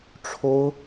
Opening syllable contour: high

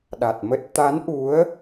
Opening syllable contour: low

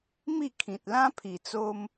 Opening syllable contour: falling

